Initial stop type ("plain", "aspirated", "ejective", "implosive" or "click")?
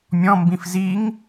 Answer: plain